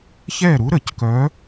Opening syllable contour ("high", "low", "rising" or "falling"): falling